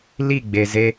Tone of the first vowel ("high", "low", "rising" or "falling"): falling